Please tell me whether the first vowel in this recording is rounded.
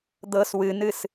no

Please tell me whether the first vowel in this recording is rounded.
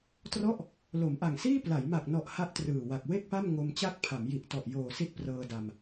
yes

